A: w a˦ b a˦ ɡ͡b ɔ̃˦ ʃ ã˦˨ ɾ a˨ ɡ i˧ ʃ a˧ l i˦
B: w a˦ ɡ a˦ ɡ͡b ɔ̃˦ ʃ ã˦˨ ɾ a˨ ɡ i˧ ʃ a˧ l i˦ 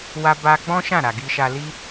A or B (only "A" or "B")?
A